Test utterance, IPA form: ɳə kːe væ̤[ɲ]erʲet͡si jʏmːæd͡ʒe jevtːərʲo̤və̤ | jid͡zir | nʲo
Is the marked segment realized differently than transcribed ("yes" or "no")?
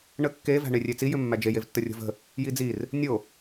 yes